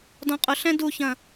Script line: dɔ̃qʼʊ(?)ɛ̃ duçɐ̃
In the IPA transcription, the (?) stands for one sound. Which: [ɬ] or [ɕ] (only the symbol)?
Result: ɬ